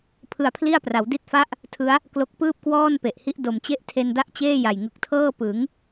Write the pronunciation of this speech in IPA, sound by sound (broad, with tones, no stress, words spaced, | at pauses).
pʰɯ˧a̯pʰli˥˩a̯pra˩˦w di˦˥t̚fa˦˥ʔ | tʰɯ˦˥a̯ | klo˦˥k̚ pɯː˥˩p̚kwɔː˥˩n pe˨˩ʔhi˦˥ʔ do˨˩mt͡ɕe˥˩ʔ tʰe˧nda˥˩ʔt͡ɕeː˥˩ ja˨˩jŋɯ˨˩k̚tʰɤː˥˩ pɯ˩˦ŋ